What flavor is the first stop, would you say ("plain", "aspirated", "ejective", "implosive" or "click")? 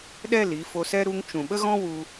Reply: implosive